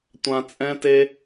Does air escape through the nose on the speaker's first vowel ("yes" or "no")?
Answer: yes